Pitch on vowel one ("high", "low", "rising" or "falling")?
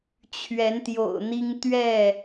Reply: rising